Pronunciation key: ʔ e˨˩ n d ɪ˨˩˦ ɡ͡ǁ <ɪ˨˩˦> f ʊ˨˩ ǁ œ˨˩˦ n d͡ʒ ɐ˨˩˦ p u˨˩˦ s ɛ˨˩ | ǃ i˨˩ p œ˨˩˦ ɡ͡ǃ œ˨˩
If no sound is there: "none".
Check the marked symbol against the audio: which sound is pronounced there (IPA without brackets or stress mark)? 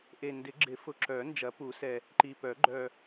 ɪ˨˩˦